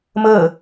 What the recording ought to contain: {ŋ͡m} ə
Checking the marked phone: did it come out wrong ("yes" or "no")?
yes